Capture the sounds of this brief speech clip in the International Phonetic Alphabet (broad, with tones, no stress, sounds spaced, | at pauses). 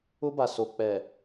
ʊ˦ b a˨ s o˨ k͡p ɛ˨